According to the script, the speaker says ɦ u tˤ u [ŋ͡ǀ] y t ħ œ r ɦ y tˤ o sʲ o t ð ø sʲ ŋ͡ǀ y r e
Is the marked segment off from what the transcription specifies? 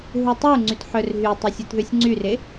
no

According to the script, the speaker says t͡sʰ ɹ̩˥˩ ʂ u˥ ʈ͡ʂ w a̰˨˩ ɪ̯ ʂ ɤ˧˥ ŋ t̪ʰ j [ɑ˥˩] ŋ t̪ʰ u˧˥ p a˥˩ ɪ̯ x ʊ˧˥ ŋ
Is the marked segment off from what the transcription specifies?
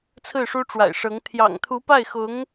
yes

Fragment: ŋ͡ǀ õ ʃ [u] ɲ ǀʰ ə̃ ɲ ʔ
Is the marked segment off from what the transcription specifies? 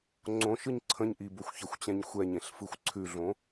yes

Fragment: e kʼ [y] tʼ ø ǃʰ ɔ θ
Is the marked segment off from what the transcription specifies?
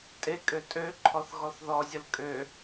yes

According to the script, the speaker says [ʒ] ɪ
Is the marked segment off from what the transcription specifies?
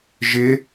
no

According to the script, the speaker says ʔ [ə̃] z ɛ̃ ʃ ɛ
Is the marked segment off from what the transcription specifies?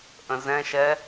no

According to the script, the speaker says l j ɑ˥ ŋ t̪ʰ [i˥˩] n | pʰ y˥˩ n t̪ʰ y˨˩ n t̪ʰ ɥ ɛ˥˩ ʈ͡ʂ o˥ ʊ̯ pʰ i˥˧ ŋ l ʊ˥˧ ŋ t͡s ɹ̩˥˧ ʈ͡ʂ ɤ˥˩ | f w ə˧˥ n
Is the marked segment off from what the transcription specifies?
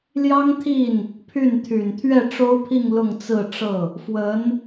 no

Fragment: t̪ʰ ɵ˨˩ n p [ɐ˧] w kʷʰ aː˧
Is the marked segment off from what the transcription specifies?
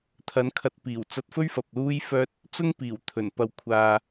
no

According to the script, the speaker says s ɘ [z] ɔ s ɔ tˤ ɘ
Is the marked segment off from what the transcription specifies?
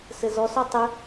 no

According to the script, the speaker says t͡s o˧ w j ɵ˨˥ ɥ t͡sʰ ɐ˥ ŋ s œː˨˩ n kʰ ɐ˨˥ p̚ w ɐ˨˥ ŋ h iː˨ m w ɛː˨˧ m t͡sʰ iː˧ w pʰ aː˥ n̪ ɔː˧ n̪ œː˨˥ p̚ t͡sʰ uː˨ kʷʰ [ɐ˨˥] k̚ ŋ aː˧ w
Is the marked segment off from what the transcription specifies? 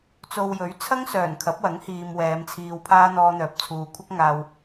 yes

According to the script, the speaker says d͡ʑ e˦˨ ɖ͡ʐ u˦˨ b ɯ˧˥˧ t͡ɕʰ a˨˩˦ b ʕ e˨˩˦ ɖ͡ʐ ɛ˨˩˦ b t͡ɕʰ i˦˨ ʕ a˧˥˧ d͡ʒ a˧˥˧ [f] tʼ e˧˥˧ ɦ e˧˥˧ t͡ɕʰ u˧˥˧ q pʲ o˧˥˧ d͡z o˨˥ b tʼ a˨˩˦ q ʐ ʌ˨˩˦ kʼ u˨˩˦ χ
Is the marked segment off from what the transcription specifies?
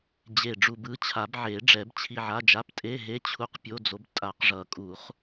yes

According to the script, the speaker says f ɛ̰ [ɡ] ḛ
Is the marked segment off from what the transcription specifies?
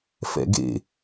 no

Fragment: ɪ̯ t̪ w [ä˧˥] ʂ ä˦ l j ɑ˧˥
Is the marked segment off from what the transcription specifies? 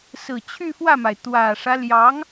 yes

